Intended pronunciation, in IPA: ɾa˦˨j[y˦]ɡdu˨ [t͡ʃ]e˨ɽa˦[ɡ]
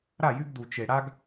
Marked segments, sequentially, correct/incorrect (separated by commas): correct, correct, correct